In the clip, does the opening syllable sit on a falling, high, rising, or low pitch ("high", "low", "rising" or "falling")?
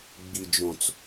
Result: low